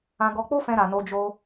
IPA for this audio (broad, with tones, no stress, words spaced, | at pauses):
ã˧ɡɔ˧k͡po˦fɛ̃˧ ɾa˧no˦d͡ʒo˦